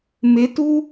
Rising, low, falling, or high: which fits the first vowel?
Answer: rising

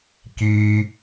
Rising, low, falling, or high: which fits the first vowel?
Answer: high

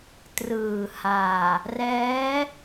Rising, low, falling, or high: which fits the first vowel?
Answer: low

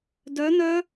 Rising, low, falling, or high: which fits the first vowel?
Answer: rising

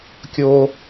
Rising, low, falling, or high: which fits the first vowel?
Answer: high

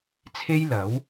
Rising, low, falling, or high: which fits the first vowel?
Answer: high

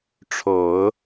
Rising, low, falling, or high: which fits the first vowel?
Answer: low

